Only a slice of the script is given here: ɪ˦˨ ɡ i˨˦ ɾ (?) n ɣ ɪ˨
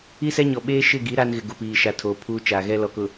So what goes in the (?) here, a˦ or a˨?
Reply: a˦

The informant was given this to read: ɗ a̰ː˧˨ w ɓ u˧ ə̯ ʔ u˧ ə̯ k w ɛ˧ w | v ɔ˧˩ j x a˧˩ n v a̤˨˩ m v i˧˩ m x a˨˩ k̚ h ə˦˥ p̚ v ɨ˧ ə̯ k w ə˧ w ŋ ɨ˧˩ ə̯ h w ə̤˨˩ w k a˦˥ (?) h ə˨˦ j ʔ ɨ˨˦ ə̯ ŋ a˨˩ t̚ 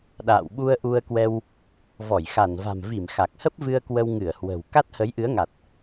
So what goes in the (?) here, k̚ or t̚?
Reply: t̚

